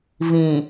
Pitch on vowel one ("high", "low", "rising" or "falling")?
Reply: low